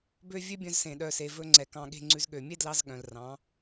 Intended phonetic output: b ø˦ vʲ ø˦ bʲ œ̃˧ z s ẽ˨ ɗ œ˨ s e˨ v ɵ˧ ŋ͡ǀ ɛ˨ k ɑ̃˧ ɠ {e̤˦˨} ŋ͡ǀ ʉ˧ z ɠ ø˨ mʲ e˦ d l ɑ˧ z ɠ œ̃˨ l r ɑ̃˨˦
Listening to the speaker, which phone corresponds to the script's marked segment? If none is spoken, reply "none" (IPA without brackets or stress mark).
e̤˦˨